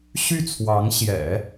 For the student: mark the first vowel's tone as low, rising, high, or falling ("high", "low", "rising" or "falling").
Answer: falling